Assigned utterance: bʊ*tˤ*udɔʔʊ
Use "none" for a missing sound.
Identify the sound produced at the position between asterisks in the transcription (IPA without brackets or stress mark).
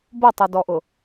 tˤ